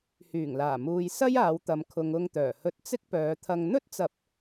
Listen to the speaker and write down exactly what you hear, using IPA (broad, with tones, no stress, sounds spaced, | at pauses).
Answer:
h yː˨˩ ŋ l aː˨˩ m uː˨ j s ɐ˥ j aː˨˧ w t̪ ɐ˨ m kʰ ʊ˨ ŋ ʊ˧ ŋ t̪ œː˨˩ h ɵ˧ t̚ t͡s ɪ˥ k̚ p œː˨˧ t̪ʰ ɐ˧ ŋ n̪ ɵ˥ t̚ t͡s ɐ˨˥ p̚